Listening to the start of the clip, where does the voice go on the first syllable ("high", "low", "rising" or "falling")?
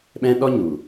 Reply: high